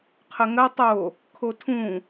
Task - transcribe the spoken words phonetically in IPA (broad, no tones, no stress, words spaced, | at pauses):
qʰəŋɜtˤ o | kʰotʰũ